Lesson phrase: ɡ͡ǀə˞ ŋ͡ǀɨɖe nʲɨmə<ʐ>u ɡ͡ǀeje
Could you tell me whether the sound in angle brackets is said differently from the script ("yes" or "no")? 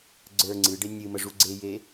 no